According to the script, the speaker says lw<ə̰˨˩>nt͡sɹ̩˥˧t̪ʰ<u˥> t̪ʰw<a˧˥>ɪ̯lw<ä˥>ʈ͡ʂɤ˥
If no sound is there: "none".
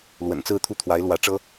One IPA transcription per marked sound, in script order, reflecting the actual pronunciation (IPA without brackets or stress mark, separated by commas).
ə̰˨˩, u˥˩, a˧˥, ä˧˥